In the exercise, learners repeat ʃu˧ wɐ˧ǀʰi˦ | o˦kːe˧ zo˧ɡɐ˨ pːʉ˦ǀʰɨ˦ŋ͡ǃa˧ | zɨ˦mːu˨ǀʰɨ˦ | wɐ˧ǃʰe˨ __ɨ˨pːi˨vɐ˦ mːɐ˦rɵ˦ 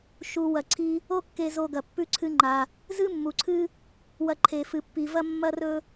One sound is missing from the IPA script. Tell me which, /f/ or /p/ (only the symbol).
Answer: f